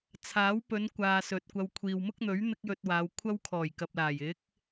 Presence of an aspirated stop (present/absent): present